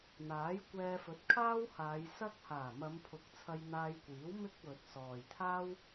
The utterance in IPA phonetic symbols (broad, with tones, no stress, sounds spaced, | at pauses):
n̪ aː˨˥ j kʷ ɛː˧ f ɵ˨˥ t̚ kʰ aː˥ w h aː˨˧ j s ɐ˥ k̚ h aː˨˩ m ɐ˨˧ m pʰ ʊ˨˥ k̚ t͡sʰ ɐ˧ j n̪ aː˧ j kʷ iː˨˥ w m ɪ˥ k̚ w ɵ˨ t̚ s ɔː˨ j t̪ʰ aː˥ w